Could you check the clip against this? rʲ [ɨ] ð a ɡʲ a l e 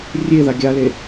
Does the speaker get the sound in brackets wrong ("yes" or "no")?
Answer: yes